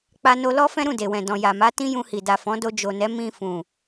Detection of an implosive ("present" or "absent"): absent